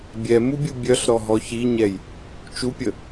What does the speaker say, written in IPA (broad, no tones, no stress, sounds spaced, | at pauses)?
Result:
bʲ ɛ m u bʲ u bʲ œ ɬ ɾ ɔ ɦ ɔ ç i ɲ ɛ j | t͡ʃ u pʲ ə